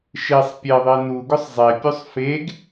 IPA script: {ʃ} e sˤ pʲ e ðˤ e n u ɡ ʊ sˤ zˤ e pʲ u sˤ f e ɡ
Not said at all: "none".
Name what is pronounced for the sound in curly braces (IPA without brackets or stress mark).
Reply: ʃ